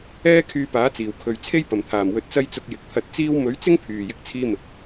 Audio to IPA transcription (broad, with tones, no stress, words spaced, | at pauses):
ɛː˥ kʰyː˧paː˨˥t͡siː˨˩wkʰɵ˨ɥ t͡sʰe˥jpɐ˨˩mt̪ʰaː˨˩m wɵ˧t̚t͡sɐ˥j t͡sʊ˧k̚jɪ˨k̚t̪ʰɐ˧t̚ t͡siː˥w mɵ˨˥ɥt͡sɪ˥ŋpʰyː˨˩ jɪ˧k̚t͡sʰiː˧mɪ˨k̚